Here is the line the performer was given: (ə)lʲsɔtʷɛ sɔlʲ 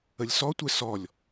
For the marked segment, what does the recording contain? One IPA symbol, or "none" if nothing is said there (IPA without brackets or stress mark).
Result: ə